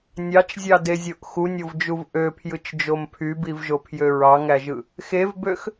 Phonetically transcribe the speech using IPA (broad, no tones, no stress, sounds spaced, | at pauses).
nʲ ɑ t͡ʃ zʲ ɑ d e zʲ o ʔ x u nʲ o v d͡ʒ u v ʔ ø pʰ j ɯ t͡ʃ d͡ʒ o m pʰ y b i v ʒ o pʰ j ø ɹ ɑ ŋ æ ʒ ɯ | x e v b ø x